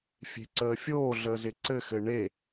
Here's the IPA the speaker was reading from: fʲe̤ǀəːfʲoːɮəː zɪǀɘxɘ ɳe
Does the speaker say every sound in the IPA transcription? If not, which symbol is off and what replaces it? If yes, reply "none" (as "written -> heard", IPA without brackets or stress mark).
none